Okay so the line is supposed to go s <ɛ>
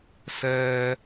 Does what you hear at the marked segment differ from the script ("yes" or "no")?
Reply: yes